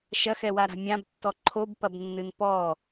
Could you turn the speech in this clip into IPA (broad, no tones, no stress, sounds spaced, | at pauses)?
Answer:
ʃ ɐ x ɛ w a ɾ a̤ mʲ ã b tː ɔ ǃʰ o b p ɐ b nː ɨ n p ɔ